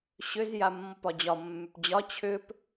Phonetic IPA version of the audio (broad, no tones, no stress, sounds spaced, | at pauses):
ɕ ʏ z j a mː ɔ p ɒ d͡ʑ ɒ mː ʏ p d͡ʑ ɒ t͡ɕʰ ʏ p